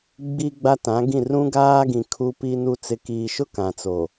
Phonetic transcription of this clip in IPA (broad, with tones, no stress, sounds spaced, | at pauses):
ɡ͡b i˦ ɡ͡b a˦ t ã˨˦ ɡ ĩ˦˨ r ũ˦ ɡ aː˦ ɡ ĩ˨ kʰ u˦ p i˦ n u˦ t͡s ɪ˨ k iː˨ ʃ ʊ˦ k ã˨ t͡s o˨